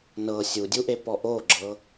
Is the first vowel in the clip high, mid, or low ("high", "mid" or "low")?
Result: mid